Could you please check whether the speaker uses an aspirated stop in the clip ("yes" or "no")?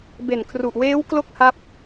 yes